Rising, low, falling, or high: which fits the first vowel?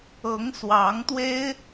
rising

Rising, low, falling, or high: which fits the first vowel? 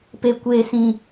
low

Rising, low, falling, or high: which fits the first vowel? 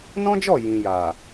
high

